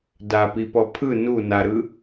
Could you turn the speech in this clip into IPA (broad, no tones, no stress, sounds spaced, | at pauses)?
d a p i p ɔ pʰ ɯ n u n a ɾ ɯ